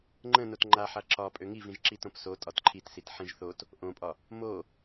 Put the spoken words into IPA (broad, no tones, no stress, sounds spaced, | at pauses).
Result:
ŋ͡ǃ ə̃ n o t ŋ͡ǃ a ħ a ǁ ɒ pʼ ø ŋ i v ĩ ʒ ǁ i t õ p s o tʼ ɒ t ǃʰ i t s i t ħ ĩ ʒ θ o t | ʔ õ pʼ ɒ | m o